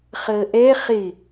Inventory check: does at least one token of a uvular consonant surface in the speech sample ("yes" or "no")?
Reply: yes